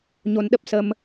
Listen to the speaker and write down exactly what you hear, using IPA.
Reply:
ɲo˧nɗə˦˥p̚sə˧m

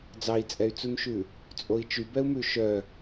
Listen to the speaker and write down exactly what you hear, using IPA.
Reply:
d͡zɑi̯t͡sʼɛy̯t͡sunʃʉ | t͡sʼoi̯t͡ʃybɛu̯mʉ ʃœ

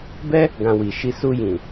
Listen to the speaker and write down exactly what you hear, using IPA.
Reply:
bɛ˦ | ɡã˧ wi˨ʃi˧ su˧jĩ˨

